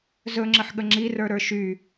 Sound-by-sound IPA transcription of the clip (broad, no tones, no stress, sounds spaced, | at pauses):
z ɵ ŋ͡ǁ ə ħ ɠ ə ŋ͡ǁ i r ə˞ ɾ ə˞ ʃ y